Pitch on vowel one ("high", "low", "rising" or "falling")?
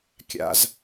high